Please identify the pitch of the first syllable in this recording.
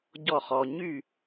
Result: falling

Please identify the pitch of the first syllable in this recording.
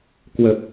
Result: low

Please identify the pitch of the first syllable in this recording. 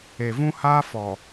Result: low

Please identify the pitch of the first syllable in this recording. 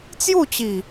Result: falling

